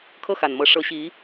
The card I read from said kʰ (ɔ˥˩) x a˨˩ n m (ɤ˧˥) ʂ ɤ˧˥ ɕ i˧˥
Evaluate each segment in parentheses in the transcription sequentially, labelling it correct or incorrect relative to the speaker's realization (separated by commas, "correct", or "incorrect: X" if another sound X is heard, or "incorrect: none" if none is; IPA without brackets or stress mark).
incorrect: ɤ˥˩, correct